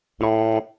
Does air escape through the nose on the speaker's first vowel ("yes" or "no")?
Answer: yes